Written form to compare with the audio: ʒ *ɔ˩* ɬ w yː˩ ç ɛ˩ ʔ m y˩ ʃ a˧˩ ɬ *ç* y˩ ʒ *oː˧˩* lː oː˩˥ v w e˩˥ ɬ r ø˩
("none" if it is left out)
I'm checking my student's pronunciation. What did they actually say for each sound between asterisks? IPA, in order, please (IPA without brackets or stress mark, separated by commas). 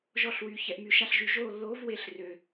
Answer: ɔ˨˩˦, ʒ, oː˧˩